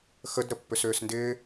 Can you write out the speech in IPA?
x ə d ɾ ə pː ʏ s ʏː s n d ɪː

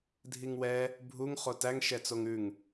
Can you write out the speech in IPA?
dʱ i ŋ w ɛ | bʱ u ŋ χ o t æ ŋ ʃ ɛ t͡s o ŋ ʉ ŋ

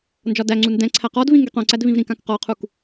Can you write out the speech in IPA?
n d͡ʒ ɒ d æ ŋ͡ǀ u n d ɛ̃ ǀʰ æ q ɔ d v ĩ ŋ ɡ ɛ q õ ǀ æ d v ĩ v ɾ ĩ k ã k q ɔ qʰ u k

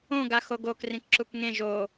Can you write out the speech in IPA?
õ ɡ a x o ɡ o k r ĩ k ǁ u k ŋ ẽ ʒ o

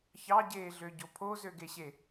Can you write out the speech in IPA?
ç ɑ ɟ eː ɮ ø ɟ o pʰ o z ø ɡ e ɕ e

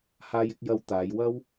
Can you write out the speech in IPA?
h aː˧ j ɪ˧ k̚ j ɐ˧ w t̪ aː˨˧ j w ɐ˥ w

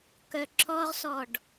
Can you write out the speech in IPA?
k œ ǁ ɔ ʁ s ɔ ɖ

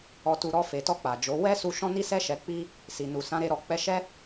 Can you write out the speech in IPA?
ɔ˨ t u˨ ɾ ɔ˧ f e˨ t ɔ˧ k͡p a˨ d͡ʒ o˨˦ w ɛ˦ s u˧ ʃ ɔ̃˧ n i˧ s ɛ˧ ʃ ɛ˨ k͡p i˧ | s i˨ n u˨ s ã˨˦ ɾ e˧ ɾ ɔ˨ k͡p ɛ˨˦ ʃ ɛ˦

